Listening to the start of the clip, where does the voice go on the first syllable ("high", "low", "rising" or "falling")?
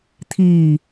low